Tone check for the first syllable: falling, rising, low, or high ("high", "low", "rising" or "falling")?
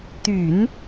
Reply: low